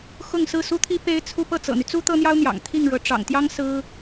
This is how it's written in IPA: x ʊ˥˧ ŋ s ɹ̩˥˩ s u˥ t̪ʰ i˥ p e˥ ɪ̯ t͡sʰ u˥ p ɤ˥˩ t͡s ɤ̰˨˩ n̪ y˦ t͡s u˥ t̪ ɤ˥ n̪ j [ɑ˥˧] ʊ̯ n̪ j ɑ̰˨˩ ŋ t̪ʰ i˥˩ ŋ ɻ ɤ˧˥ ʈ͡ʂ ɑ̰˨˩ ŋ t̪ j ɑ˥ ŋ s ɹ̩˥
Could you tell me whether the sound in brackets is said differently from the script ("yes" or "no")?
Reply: yes